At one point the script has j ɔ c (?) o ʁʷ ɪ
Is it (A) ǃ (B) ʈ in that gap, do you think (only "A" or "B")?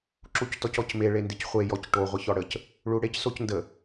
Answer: B